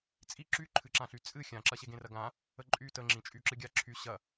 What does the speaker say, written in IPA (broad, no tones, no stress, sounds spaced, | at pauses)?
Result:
t͡sʼ i ǁ y ǃʰ ɨ ǁ ã ɬ y t͡sʼ ɨ xʲ ã ǁ ɐ ɕ e ɡ ẽ r ɐ ɡ ã | ə ǃʼ y t ə ŋ͡ǁ ĩ t͡ʃʼ y ǁ ɨ ɡʲ a ǁʰ y ɕ ɐ